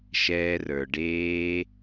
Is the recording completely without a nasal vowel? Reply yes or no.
yes